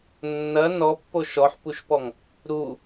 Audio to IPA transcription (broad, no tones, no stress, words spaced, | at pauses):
nːɐ nɔpːo ʃɔħpuʃpɔŋ | ɾu